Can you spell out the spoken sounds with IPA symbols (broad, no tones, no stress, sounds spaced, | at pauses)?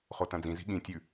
χ o t ɐ̃ d͡z ĩ z i̤ ɠ ĩ tʲ ʉ